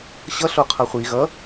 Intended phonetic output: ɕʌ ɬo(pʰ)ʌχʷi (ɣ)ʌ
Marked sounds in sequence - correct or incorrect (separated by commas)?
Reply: incorrect, correct